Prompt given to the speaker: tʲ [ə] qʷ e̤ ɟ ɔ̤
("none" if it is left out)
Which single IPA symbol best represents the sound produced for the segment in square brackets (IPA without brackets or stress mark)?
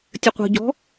ə